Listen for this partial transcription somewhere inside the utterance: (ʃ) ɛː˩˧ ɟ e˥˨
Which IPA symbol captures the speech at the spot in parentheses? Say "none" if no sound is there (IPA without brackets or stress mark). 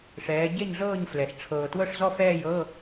ʂ